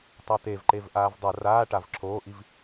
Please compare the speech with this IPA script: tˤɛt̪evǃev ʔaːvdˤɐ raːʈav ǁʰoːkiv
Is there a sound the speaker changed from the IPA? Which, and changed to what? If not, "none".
k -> ʔ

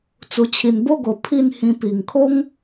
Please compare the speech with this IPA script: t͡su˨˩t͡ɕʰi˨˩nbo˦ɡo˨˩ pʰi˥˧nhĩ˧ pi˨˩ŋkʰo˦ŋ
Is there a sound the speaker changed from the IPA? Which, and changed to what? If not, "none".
none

